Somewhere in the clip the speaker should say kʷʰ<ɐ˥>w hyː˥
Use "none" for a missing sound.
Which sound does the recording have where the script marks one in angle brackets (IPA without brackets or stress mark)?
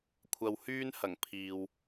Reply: ɐ˧